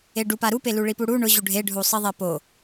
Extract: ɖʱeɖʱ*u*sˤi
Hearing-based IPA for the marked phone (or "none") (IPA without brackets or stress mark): u